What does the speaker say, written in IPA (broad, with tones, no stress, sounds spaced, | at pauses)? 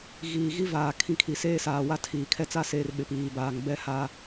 ɣ iː˨ ɣ i˦ v aː˨ kʰ ĩ˨˦ kʰ i˨ s eː˦ s aː˨ w a˦ tʰ iː˨ kʰ ɛ˦ t͡s a˦ s eː˨ r ɓ ɪ˨ p iː˨ b aː˨ ŋ b ɛ˦ h aː˦